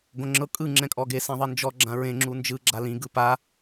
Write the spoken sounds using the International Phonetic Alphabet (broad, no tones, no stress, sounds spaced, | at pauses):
ɡ õ ŋ͡ǁ ɤ kʼ ɯ ŋ͡ǁ ɛ̃ kʼ ɔ ɡ e s ɛ̃ ðˤ i n d͡ʒ ɔ ɡ͡ǁ ã ɹ ẽ ŋ͡ǁ u n d͡ʒ ɯ ɡ͡ǁ a l ĩ ɡ ɯ p a